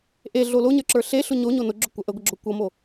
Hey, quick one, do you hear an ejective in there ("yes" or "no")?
no